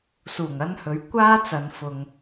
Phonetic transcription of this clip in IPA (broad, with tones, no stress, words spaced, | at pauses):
suː˨˩ŋ ɐ˥nhɵ˨˥ɥ kʷaː˥t͡sɐ˨n fʊ˨ŋ